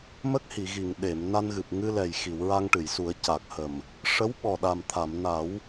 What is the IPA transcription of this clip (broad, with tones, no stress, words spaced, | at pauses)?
mə˦˥k̚hi˨˩˨ɣi˨˩˨ŋ ɗe˨˩˨m na˧nɣɨ˨˩p̚ ŋɨ˧lɛ˨˩jxi˨˩˨w ɹa˧ŋʈɨ˨˩˨jsu˨˩˦ə̯ ca˨˩k̚hə˨˩m | ʂə˧˥wɓɔ˨˩ɗa˨˩mt̪ʰa˨˩˨m na˨˩˦w